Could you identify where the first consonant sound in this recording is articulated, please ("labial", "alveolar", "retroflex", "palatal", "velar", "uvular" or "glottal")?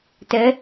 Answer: alveolar